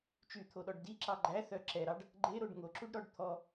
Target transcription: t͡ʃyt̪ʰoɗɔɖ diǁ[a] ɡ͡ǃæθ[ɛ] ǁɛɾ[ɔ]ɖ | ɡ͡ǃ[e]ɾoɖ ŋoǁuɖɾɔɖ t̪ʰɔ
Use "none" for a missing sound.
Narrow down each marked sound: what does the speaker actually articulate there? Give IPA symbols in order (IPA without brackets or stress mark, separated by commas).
ɑ, œ, ɑ, e